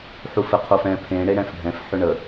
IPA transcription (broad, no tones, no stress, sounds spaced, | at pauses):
ħ u f ɘ qʰ o f ɛ̃ pʰ ẽ ɽ e ɽ ɛ̃ f ɖʱ ɛ̃ f ħ ʏ ɳ ə